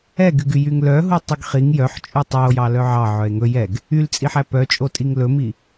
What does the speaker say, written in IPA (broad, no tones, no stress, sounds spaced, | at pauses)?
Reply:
ɛ ɡ y ɡ y j y ŋ l œ ɦ u tˤ y ɡ χ i ŋ j œ ħ t͡ʃʼ ʉ tˤ œ o̯ j ɑ l œ ʕ ɑ ʕ œ e̯ ŋ ɵ j ɛ ɡ | y l t͡sʼ i ħ æ p œ t͡ʃʼ o tʼ i ŋ l ɵ m i